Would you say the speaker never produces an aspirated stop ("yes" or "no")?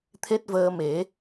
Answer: no